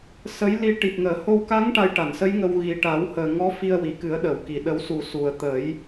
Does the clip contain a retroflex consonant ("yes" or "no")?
yes